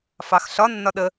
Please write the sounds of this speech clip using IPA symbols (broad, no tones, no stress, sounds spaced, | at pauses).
f ɑ x ɬ ɒ nː ɒ ɗ ə